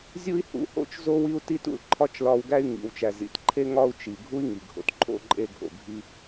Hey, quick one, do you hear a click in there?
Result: yes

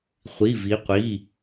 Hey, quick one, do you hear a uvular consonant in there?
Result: yes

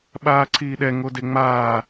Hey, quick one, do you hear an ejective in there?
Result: no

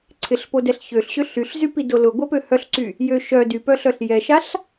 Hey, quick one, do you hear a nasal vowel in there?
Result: no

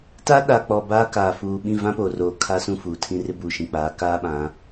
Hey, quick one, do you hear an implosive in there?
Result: yes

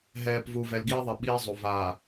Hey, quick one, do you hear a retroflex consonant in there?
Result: no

